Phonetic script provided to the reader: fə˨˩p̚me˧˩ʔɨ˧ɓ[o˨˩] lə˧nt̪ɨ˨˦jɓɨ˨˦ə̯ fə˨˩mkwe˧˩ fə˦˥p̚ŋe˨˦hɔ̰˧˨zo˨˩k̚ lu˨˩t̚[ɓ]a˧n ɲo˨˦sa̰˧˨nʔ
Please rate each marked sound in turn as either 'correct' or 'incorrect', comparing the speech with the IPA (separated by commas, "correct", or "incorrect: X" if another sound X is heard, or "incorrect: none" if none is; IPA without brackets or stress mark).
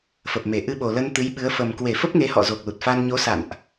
correct, incorrect: f